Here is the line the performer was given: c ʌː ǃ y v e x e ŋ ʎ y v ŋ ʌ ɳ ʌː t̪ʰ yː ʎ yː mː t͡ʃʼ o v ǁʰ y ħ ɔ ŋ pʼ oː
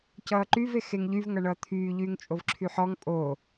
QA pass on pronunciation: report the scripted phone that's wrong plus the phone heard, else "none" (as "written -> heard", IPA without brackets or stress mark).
mː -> ŋ